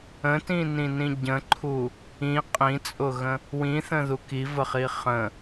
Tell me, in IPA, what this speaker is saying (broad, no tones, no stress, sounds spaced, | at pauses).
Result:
ə̃ t ĩ n ĩ n ĩ ɟ ə̃ ǃʰ u | ĩ qʼ ĩ t͡sʼ ʊ ɣ ə̃ | w ĩ θ ə̃ ð u k i v ə χ i χ ə̃